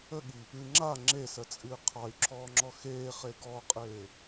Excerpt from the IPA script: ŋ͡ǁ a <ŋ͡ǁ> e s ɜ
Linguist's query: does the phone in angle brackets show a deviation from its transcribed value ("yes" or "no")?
no